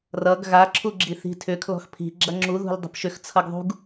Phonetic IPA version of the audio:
r ʌ ɡ ɣ a ǁʰ u ɡ͡ǁ i θ i̤ tʰ ʏ kʰ l ɔ̤ x pʰ i̤ ɡ͡ǁ ɐ ŋ͡ǁ u ð ṳ l dˤ ə̤ p ʃ ʏ x t͡sʰ ʌ ɡ ðˤ ṳ ɡ

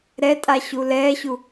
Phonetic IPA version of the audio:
ɾ ɛ tʼ a ɕ u l ɛː ɕ u

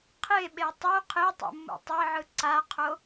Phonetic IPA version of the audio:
qʰ e ɓ e tˤ u qʰ e tˤ ṵ mː ṵ tˤ ɤ ʕ ɯ ǀ a qʰ o

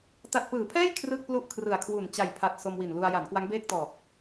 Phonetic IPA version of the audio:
t a˨˩ t̚ p ɯː˩˦ pʰ ɛː˥˩ j kʰ r ɯː˥˩ k̚ p l u˥˩ ʔ kʰ r ɯ˨˩ a̯ kʰ w u˨˩ n t͡ɕ a˨˩ j pʰ a˨˩ t̚ s o˧ m w i˨˩ n l u˧ a̯ j a˩˦ n k w a˦˥ ŋ b eː˥˩ k̚ t ɔː˨˩ k̚

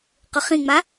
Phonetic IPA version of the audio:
q ʊ χ ĩ ŋ͡m a

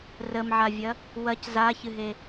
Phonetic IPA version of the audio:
r ə m ʕ a vʲ ɐ | w ɐ c z a ç ɨ ɦ e

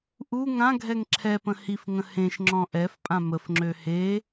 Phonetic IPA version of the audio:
ʔ u ŋ ã ɡʱ ɛ ŋ ǁʰ ɛ p ə̃ h i f ŋ ə̃ h ẽ ʃ ŋ͡ǁ ɔ̃ ʔ ɛ f pʼ ã m ə f ŋ͡ǁ ø h e

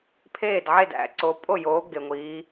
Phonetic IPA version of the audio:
pʰ eː˥˩ d ʕ e˥˩ d æ̰˨ ǀ o˨˦ pʼ o˥˩ j oː˨˦ ɡ e˨ ŋʷ iː˨˦

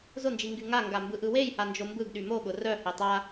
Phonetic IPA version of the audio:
z ʊ n d͡ʒ i ŋ ɡ y ŋ a ŋ ɡ a m b ɯ ʔ ɯ w e j h a n d͡ʒ o m b ɯ ɡ ɗ y m o ɠ ʊ r œ h e tˤ a

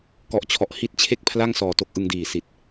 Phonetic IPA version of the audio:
k ɔ˨˩ ʔ t͡ɕʰ ɔ˨˩ ʔ h i˥˩ t̚ t͡ɕʰ e˥˩ k̚ pʰ l a˥˩ ŋ s ɔː˨˩ t o˦˥ k̚ ʔ ɯ˧ ŋ d iː˨˩ s i˨˩ t̚

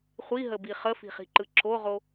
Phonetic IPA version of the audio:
χʷ i ɦ ə b i χ ə f i̤ χ i̤ ǃ ɯ ǁ o ʁ o

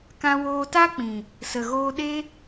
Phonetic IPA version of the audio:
k ã˧ w oː˧ t a˦ k͡p ĩ˨ | s ə˨ ɣ oː˧ ɗ e˦

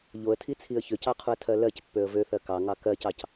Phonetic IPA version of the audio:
ʎ o ə̯ tʰ i t͡sʰ i ə̯ ç ø c ɑ qʰ u ə̯ tʰ ɜ l ɜ c pː ø ə̯ v ø θ ɜ k ɑ ŋ ɑ k ɜ c ɑ c

